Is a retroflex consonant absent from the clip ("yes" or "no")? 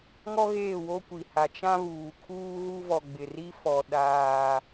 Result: yes